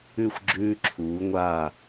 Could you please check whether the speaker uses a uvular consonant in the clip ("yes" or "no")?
no